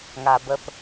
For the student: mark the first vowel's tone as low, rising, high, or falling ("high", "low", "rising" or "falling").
low